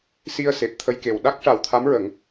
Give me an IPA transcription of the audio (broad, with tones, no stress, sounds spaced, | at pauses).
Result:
s i˧ ə̯ s e˨˩ p̚ t̪ʰ ə˧ j k e˨˩ w ɗ a˦˥ k̚ ʂ a˨˩ w t̪ʰ a˧˥ m ɹ ə˨˩˦ ŋ